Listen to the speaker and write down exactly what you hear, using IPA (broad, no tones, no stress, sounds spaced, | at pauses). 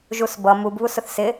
ʒ u s b ʌ m u b β u s ʊ θ s ɪ